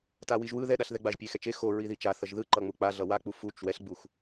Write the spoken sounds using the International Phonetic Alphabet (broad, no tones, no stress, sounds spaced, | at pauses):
t a w i ʒ w ɯ ð ɛ ɗ a ɬ ð ɛ ɡ͡b a ʒ pʲ e x ɛ t͡ʃ e x o ɹ i ð i t͡ʃ a θ ʌ ʒ ð ɯ ǃ ʌ ŋ͡m u k͡p a ɮ ʌ w a k͡p u f u t͡ʃ w ɛ ɬ ɡ͡b u x